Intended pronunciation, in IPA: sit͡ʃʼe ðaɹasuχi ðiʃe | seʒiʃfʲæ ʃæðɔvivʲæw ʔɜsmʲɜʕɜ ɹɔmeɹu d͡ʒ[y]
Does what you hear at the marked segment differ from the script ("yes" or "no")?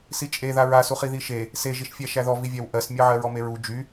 no